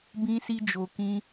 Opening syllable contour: high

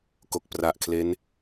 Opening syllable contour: low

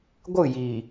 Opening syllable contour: falling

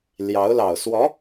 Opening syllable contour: rising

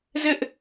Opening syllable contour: high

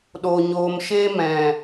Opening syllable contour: low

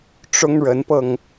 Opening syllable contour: high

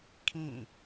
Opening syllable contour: falling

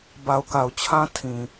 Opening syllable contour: low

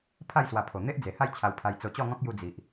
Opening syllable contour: falling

